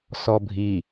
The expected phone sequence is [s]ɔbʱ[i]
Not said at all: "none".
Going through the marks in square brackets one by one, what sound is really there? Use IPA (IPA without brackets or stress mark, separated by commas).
s, i